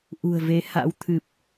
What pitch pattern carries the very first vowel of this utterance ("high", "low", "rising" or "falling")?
low